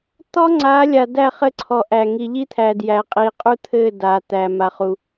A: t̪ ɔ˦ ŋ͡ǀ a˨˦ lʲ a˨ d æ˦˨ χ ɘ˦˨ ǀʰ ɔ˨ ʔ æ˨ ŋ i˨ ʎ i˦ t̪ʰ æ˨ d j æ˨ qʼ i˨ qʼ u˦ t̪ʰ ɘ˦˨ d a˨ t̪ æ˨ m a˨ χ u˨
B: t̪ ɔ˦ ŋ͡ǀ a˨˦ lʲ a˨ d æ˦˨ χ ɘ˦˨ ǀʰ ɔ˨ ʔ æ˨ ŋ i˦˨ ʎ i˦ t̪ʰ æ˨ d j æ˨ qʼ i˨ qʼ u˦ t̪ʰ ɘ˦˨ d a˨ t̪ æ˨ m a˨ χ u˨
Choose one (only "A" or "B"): A